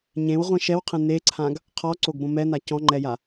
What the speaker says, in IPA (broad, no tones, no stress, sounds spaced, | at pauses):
ɲ ẽ w ʁʷ ĩ ʃ ɛ w qʰ ẽ n e ǀʰ ã ɡ | qʰ ɔ ǀ o ɡ b õ m ɛ n a c ɔ̃ ŋ͡ǃ ɛ j a